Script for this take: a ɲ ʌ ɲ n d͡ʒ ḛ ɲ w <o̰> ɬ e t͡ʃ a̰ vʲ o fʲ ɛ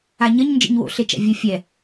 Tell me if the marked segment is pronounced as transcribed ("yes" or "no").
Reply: yes